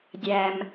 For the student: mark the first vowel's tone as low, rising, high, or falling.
low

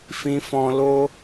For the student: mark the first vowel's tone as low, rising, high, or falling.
high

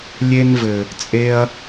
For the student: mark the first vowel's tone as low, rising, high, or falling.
high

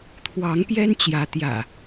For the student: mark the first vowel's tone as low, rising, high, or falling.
rising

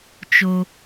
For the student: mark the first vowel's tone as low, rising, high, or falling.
high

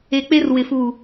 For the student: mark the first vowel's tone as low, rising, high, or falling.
low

